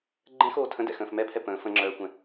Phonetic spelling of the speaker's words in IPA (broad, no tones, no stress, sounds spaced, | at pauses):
ɡ͡ǃ ɛ̃ x oː tʰ ə̃ d ɛ̰ x ə̃ː f m ɛ pʰ ɛ p ə̃ː f ə̃ ŋ͡ǁ œː kʷ ɛ̃